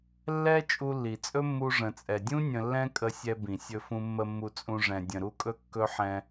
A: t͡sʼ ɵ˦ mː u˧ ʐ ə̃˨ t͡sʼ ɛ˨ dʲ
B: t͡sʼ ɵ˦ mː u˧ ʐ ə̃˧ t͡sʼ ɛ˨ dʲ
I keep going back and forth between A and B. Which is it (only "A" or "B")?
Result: A